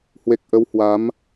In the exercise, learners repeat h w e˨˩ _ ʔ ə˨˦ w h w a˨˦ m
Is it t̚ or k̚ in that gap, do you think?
k̚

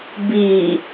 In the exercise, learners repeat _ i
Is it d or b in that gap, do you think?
b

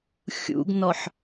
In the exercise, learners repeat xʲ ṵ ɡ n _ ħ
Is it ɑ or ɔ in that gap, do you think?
ɔ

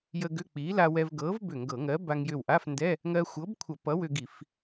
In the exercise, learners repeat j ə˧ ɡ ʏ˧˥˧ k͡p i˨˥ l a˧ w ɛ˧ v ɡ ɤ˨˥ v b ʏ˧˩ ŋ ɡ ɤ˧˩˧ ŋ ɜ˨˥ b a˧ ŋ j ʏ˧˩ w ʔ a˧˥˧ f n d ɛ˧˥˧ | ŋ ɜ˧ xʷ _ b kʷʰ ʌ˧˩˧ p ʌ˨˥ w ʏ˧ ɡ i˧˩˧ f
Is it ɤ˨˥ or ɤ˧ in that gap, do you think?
ɤ˨˥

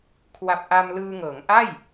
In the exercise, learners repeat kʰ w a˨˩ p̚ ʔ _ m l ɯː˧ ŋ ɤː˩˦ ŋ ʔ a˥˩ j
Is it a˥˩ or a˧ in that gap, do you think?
a˧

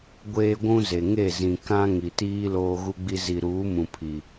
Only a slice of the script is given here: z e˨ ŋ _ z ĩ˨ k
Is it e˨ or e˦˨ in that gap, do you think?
e˦˨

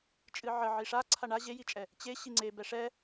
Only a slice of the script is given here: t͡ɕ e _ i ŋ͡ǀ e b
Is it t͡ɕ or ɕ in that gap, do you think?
ɕ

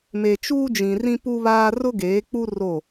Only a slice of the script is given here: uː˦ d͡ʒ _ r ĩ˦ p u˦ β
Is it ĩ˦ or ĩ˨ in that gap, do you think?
ĩ˨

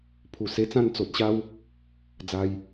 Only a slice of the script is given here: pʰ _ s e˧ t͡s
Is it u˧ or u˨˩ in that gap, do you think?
u˨˩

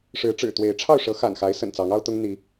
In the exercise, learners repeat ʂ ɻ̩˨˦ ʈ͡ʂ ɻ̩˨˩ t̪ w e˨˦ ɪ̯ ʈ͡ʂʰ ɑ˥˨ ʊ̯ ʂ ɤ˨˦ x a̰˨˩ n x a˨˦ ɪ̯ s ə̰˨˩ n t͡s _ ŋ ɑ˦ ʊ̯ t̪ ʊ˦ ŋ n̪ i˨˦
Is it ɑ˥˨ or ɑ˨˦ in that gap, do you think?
ɑ˨˦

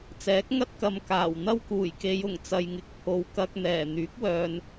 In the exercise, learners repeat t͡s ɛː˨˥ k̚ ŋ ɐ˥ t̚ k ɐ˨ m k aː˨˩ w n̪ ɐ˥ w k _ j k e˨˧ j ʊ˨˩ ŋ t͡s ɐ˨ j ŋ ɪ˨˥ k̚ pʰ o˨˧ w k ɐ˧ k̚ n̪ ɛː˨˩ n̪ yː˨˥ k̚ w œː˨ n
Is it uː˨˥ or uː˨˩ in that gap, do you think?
uː˨˩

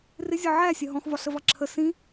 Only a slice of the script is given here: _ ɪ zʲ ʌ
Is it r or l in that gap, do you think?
r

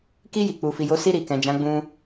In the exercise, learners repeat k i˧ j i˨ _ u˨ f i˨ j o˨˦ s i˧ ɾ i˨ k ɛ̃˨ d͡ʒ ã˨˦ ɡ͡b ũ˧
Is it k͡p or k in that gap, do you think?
k͡p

